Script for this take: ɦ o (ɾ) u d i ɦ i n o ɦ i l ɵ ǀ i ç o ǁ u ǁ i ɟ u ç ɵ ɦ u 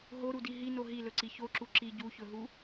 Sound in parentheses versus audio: correct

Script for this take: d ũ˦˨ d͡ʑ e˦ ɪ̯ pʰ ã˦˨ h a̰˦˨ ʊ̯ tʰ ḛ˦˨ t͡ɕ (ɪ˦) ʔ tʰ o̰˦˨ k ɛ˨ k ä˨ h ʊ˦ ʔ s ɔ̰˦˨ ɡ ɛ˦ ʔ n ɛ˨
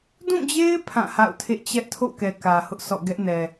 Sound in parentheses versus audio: incorrect: ɛ˦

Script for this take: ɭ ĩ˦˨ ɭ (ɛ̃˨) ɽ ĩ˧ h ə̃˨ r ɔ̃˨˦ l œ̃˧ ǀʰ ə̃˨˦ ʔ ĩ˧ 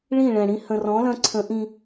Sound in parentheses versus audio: correct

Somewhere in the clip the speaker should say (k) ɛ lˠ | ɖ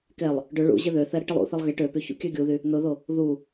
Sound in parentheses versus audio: correct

